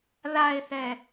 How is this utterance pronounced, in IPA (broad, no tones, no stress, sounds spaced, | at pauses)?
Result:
ð a e̯ θ ɛ